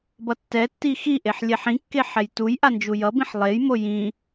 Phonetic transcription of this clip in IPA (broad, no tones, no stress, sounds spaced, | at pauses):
b ʌ tː ɛ tː i x i ʔ e ħ lʲ ɛ ħ ĩ kː e ħ ɛ j t u j ʔ a n d͡ʒ u j ʌ b ĩ ħ lˠ e j m o j ĩ